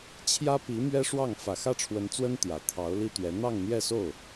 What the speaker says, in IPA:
t͡ɕʰjä˥pi˧˥ mɥɛ˥ʂwɑ˥˩ŋ fä˨˩xä˥˩ʈ͡ʂʰwə˧˥nt͡swə˥n t̪jä˨˩ t̪ʰɑ˧˥ʊ̯li˥t̪ɥɛ˧˥ n̪ɑ˥˧ŋn̪jɛ˥˧so˥˩ʊ̯

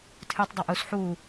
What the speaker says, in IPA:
tʰɨtˤdˤaʔ us ħu

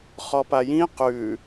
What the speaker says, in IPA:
χɔpajĩ qʉ

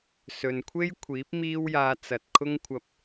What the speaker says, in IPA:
sɵ˨n kʷʰe˥jkʷʰiː˨˥p̚ miː˥wjaː˧ t͡sɐ˨t̚kʰʊ˥ŋkʷʰɐ˧p̚

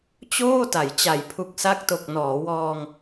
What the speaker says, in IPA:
t͡ɕoː˥˩ta˩˦j t͡ɕa˩˦jpʰu˨˩k̚sa˦˥k̚to˨˩k̚ nɔː˩˦wɔː˧ŋ

